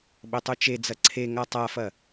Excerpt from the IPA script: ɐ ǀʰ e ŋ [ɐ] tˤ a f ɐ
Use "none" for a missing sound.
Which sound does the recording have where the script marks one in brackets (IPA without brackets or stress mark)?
a